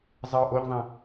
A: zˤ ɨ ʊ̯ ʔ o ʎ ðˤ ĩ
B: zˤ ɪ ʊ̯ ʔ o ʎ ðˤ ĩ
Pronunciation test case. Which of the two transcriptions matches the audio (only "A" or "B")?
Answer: A